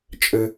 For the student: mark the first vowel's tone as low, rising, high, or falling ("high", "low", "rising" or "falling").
high